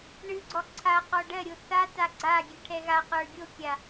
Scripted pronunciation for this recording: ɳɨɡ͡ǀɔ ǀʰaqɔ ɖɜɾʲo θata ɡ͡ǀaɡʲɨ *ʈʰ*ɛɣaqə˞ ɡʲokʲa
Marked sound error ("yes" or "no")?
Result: no